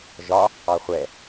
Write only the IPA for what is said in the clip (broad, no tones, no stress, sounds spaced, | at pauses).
ʒ ɒ | ɑ χʷ ɛ